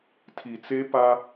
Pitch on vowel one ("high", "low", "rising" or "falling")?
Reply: low